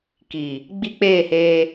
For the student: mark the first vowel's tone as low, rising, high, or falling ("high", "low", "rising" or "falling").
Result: low